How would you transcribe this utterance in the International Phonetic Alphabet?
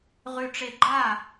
ʁ ʉ˧ ʈ͡ʂ e˧ ɡ͡ǃ a˥˩

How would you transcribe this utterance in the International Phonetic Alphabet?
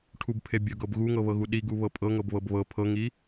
ʈʰ u b pʰ e bʲ ɤ ɡ ɤ b ɣ u ŋ ɤ β ɤ ɣ u ɗ i ɡ u β ɤ pʼ ɤ ŋ ɤ b β ɤ b β ɤ pʰ ɤ ŋ i

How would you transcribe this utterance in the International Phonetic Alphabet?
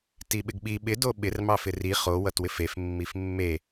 t i ɓ ɪ ɡ ɓ i ɓ ɪ d o ɓ ɪ r m ɑ f ɪ r i χ o w ʌ t w ɪ f e f mː i f mː e

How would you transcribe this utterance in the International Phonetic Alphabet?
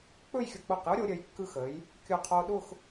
k͡p ɵ˥˧ j xʲ ʊ˧ k͡p ʊː˧˩ q j ʊ˥ ɾʲ o˩˧ ɾʲ əː˩˧ j kː ɯ˧ x əː˩˧ j | kʲ ʊː˧˩ qʰ oː˧ ɗ ʊː˥˧ x

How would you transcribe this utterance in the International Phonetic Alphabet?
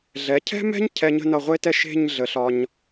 ɮ ɛ˩˧ cʰ ɛ̤˥ m ɛ̤˥ ɲ cʰ ɛ˧ ɲ ə̤˥˧ n ʌ˧˩ ʁʷ e˥ t ɛ˥˧ ʃ e̤˥˧ ɲ ɮ ə˩˧ ɬ ɒ˧ ɲ

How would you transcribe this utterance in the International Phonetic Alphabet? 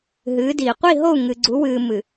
ɦ ɨː˨˦ d iː˨ qʷ i˦˨ ɦ o˦˨ u̯ ŋ ɨ˨ ɡ͡ǀ u˨˦ w ɨː˨ m ɨ˨

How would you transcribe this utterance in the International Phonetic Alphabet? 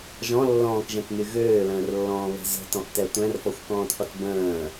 ʒ ɔ̃ lː ɔ̃ː k ʒ ɛ̃ t n y ɣ øː l ə̃ː r lː ɔ̃ː β ɛ̤ z ə̤ t ɔ̃ ʔ t ɛ tʷ ɛ̃ r f ɔ xʷ k ɔ̃ː t qʷ ə t b ə̃ː

